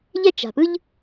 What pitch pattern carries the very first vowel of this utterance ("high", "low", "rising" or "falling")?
high